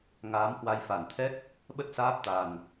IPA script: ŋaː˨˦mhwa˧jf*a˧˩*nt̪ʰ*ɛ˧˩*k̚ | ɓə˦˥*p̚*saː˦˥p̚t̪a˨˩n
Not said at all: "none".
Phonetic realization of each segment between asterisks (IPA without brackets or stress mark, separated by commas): a˧˩, ɛ˦˥, t̚